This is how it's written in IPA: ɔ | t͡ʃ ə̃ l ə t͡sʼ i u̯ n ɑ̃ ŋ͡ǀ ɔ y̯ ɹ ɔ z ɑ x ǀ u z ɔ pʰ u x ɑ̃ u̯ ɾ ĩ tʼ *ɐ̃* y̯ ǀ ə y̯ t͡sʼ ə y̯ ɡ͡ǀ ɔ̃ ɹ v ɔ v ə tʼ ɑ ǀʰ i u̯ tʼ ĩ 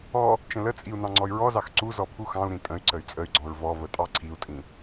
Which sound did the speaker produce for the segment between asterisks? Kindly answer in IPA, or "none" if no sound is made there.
ə̃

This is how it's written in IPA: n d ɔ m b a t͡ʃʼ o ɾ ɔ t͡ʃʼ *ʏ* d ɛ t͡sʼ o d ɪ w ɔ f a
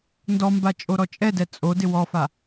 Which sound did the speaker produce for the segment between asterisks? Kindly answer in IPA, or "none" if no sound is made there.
ɛ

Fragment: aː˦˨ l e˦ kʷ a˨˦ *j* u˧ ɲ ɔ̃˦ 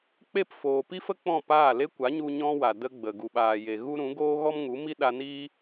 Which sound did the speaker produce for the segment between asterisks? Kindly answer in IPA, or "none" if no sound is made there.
ɲ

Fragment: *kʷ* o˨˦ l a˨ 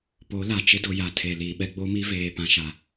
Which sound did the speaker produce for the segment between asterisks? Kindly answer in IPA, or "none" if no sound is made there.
p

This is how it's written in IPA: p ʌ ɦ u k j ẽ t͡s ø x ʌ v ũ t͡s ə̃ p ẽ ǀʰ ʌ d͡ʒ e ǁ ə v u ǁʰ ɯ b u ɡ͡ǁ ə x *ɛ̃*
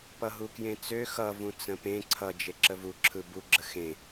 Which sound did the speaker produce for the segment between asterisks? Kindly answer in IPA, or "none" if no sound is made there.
ẽ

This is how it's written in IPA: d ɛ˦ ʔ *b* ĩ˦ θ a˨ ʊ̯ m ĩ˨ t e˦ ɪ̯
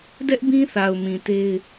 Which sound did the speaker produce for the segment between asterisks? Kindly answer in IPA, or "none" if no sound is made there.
b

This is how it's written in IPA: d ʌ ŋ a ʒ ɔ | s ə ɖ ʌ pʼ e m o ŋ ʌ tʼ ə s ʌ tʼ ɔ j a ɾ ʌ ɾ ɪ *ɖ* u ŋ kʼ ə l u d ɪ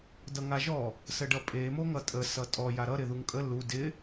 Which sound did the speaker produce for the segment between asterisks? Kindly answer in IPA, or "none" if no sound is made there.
ð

